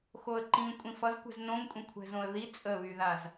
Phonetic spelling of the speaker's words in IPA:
x o ə̯ ǃ ĩ kʷʼ ĩ f ʌ z kʷ ɛ̤ z n õ ŋ kʷʼ ĩ kʷʰ ɛ̤ z õ ə̯ ð i t͡sʼ ə β y ð a z

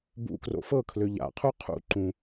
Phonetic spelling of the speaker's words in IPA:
b ṵ k r o̰ f ɤ kʰ l ø ʎ a̰ qʰ u qʰ ṵ ǃ ũ

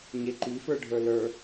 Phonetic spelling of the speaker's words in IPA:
ɲ e ǃ i f ə˞ ɖʱ ə˞ l ə˞

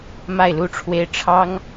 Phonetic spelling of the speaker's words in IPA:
m a˥˧ ɪ̯ l u˥˩ ʈ͡ʂʰ w e˥ ɪ̯ ʈ͡ʂʰ ɑ˥ ŋ

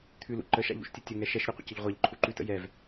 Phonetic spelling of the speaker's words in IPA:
t̪ʰ ʉ l ṵ ǃ ə ʃ a̰ ʎ ṵ ʃ tʲ ə tʲ ə ŋ ɛ ʃ ɛ ʃ ɾʲ ɒ qʷ ə̰ c ə ʎ ʁʷ a ʎ ǃʰ u ǃ ʉ t ə̰ j ɛ v

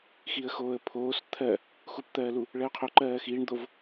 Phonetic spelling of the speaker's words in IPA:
x i ə̯ x oː ə̯ pʰ oː s t̪ʰ ɜ | x u p t̪ ɜː l u | ɭ ɜ ʊ̯ qʰ o ǃ ɜː x iː ɳ d̪ o v

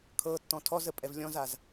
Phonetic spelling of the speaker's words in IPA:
kʰ ɤ tː ɔ̃ tʰ ɔ z ə pʼ ɛ v lʲ ɔ̃ z a z

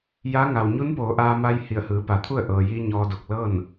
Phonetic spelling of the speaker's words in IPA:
j a˧˥ ŋ a˩ w ɲ u˧˥ n p oː˩˧ ʔ aː˧ m a˧ j h i˧˩ ə̯ h ɯː˩˧ p a˩˧ t̪ʰ u˥˨ ə̯ ʔ ɤː˩ j iː˧ ɲ ɔː˧ d o˧˩ k̚ l ɤː˥˨ n

